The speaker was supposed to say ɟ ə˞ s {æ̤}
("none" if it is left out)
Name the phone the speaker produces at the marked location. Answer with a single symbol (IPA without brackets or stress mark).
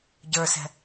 ɛ̤